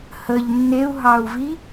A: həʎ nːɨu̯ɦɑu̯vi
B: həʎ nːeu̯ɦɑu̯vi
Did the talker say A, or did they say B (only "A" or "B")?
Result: B